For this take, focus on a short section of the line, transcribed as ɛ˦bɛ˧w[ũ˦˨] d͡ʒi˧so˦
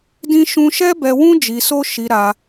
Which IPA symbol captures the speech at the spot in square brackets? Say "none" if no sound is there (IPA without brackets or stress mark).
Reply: ũ˦